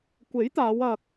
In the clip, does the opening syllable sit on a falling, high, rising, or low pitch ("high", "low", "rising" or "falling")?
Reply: rising